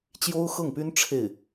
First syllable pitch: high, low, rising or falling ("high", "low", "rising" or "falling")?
high